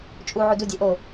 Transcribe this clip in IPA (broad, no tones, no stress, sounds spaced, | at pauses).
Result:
t͡ʃʼ u ʕ u d u dʲ æ ʔ o